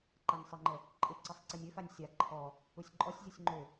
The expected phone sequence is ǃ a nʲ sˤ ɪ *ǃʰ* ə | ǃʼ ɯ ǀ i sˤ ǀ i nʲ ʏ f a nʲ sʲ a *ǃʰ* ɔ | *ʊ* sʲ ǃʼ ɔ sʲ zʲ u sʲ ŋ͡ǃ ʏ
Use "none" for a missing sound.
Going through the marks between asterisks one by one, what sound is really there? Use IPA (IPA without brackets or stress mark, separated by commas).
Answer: ŋ͡ǃ, ǃʰ, u